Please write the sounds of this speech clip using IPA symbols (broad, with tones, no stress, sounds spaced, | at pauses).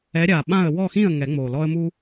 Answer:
ɛ˨˥ ɾʲ a˨˩ ɓ ã˥˩ ə̯ w ɔ˥˩ x ĩ˥˩ ə̯ ŋ ɛ˨˩˦ ŋ͡m o˨˩ l ɔ˦ ə̯ m u˦